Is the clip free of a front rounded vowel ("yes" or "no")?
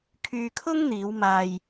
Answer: no